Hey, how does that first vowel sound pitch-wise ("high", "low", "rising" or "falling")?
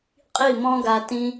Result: falling